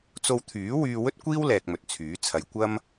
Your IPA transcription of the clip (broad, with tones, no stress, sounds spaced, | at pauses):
t͡s o˧ w t̪ʰ yː˨˥ w yː˧ w ɵ˥ t̚ kʷ iː˥ w l ɛː˨ k̚ m ɵ˨ t̚ t͡sʰ yː˨˥ t͡sʰ ɐ˧ j kʷ ɐ˥ m